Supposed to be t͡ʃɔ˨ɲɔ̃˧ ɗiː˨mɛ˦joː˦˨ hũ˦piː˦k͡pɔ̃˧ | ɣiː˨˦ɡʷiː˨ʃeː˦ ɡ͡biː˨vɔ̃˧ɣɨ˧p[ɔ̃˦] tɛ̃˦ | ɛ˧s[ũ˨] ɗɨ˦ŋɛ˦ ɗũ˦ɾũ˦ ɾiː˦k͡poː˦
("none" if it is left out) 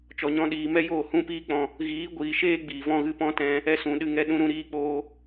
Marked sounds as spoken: ɔ̃˦, ũ˨

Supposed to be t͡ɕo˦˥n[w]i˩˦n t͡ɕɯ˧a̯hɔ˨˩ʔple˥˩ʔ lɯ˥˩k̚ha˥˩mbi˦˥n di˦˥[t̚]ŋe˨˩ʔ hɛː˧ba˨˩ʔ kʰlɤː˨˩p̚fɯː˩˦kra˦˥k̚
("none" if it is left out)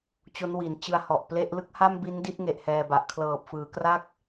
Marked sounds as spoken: w, t̚

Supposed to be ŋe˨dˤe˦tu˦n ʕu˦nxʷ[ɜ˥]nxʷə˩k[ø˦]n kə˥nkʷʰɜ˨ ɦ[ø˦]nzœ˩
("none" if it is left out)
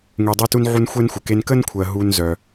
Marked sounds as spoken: ɛ˥, e˦, u˦

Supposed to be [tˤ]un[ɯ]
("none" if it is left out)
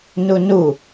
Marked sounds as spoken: n, u

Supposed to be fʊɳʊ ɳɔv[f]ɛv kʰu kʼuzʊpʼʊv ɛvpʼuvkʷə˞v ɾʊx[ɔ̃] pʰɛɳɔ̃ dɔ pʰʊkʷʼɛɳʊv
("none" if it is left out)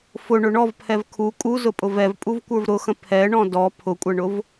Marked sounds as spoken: pʰ, ə̃

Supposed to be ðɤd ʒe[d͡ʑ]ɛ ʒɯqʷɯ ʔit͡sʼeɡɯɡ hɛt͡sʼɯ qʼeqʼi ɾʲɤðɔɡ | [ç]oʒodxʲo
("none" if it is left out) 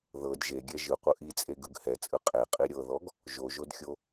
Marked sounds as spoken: ɡʲ, ʒ

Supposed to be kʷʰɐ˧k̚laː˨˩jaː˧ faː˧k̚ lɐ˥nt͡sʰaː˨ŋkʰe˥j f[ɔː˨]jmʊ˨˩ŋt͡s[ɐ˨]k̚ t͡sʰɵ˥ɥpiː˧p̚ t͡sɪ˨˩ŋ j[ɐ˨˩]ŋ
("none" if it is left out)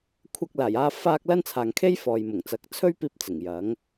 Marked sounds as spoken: ɔː˨, ɐ˨˥, ɐ˨˥

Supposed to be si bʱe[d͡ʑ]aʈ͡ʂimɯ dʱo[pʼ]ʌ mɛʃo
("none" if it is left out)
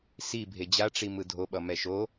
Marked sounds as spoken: d͡ʑ, ɓ

